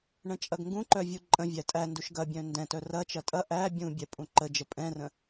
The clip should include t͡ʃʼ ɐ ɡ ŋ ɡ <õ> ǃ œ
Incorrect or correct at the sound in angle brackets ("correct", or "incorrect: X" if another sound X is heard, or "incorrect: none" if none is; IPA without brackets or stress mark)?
incorrect: ũ